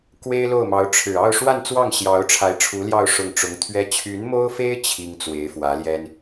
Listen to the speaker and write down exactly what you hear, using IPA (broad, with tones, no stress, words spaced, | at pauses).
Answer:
kwe˥ɪ̯lo˥˩ʊ̯mɑ˧˥ʊ̯ʈ͡ʂʰɻ̩˨˩ ɑ˥˧ʊ̯ ʂwa˥˧nt͡swɑ˥˩ŋ ɕjɑ˧˥ʊ̯ʈ͡ʂʰa˧˥ɪ̯ʈ͡ʂʰu˧˥ljɑ˥˧ʊ̯ ʂʊ˥˩ŋ ʈ͡ʂʊ˧˥ŋ t̪ʰɥɛ˥ t͡ɕʰy˧˥nmo˥ʊ̯fe˥ɪ̯ t͡ɕʰi˥ŋ t͡swe˧˥ɪ̯fwä˧˥ljɛ˥n